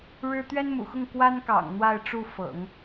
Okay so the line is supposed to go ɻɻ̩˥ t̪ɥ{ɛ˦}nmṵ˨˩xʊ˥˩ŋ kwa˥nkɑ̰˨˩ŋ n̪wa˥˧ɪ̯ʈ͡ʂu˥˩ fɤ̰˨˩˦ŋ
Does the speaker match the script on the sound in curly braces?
no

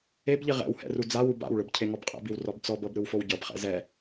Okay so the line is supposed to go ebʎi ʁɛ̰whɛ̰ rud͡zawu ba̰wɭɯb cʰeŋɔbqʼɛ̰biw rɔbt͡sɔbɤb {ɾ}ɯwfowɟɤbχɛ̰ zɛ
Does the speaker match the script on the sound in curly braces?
yes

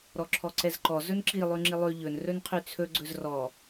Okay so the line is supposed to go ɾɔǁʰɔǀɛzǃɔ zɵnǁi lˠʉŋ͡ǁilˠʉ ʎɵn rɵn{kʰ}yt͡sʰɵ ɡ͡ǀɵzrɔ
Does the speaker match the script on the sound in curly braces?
no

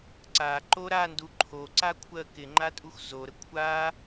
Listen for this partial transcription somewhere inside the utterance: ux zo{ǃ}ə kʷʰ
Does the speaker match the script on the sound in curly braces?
no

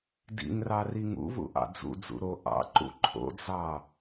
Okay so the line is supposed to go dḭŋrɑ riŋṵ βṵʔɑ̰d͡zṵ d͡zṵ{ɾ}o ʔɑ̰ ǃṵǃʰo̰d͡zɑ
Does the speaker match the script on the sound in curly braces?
yes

